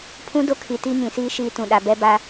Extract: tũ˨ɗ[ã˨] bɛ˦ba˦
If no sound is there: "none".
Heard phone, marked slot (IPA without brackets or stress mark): a˨